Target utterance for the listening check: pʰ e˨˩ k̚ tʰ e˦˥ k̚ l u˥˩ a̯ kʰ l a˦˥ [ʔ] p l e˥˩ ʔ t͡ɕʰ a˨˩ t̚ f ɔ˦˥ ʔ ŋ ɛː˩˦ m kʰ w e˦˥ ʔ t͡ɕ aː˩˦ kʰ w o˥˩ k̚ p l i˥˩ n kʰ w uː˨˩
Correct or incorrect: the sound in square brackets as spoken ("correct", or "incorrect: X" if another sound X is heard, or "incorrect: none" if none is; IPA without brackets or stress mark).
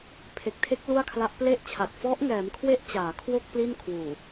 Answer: correct